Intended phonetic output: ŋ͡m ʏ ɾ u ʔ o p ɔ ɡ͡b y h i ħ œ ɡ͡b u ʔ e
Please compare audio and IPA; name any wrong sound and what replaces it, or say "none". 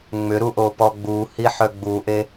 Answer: y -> u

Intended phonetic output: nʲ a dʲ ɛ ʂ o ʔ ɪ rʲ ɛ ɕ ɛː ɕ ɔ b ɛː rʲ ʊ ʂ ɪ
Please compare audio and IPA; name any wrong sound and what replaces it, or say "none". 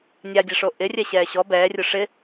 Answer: none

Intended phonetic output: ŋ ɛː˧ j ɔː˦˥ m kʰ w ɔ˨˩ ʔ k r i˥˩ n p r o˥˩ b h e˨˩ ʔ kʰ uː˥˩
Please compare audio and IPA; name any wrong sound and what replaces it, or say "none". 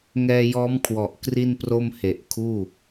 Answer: b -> m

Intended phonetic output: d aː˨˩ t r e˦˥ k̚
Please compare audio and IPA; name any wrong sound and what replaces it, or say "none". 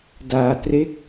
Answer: none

